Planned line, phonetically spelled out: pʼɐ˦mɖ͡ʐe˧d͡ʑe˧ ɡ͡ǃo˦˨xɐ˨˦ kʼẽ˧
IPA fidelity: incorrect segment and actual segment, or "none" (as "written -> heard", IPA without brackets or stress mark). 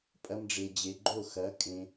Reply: none